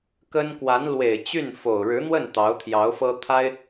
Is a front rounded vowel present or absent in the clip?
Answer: present